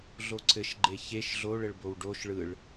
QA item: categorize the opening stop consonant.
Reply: click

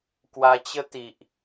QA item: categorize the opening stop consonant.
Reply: plain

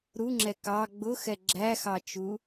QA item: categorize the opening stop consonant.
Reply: click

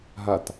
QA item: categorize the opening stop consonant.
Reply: plain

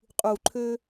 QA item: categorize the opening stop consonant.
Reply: ejective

